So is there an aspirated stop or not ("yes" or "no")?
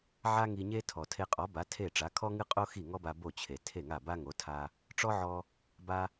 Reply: yes